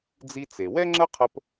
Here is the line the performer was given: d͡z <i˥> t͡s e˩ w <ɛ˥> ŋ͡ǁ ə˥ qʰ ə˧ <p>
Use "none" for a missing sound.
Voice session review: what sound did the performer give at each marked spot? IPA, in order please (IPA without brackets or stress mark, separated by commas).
i˧, ɛ˥, p